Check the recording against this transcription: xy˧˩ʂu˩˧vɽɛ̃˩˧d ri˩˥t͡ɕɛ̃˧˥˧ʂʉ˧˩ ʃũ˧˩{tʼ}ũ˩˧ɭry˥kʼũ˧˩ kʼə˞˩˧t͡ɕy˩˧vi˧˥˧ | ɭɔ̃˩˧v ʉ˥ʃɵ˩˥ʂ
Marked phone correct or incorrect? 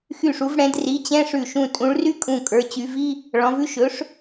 correct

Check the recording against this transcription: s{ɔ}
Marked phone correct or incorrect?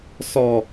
correct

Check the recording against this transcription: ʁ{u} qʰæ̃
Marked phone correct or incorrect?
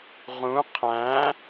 incorrect: ũ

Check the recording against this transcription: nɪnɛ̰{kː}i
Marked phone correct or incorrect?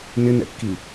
correct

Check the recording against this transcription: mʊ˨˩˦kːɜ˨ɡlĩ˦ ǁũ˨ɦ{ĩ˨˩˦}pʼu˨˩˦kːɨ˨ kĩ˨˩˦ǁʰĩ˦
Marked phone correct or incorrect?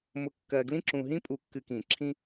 incorrect: ĩ˦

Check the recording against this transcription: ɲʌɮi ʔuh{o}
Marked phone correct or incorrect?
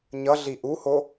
correct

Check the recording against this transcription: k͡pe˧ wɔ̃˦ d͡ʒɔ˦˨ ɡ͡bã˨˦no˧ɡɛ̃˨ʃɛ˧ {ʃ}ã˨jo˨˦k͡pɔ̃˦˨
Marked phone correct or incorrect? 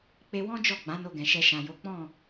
correct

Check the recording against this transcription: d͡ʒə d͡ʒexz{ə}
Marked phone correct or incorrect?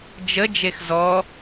incorrect: ɔ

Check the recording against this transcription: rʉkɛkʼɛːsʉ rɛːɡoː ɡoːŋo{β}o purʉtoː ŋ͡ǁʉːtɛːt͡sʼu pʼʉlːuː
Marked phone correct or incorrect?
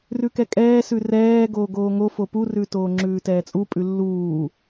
incorrect: f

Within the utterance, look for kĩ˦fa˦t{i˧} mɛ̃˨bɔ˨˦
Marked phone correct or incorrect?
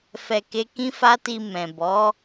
correct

